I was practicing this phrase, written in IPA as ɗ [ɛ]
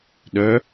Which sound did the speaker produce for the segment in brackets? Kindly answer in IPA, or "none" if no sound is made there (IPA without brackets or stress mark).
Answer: œ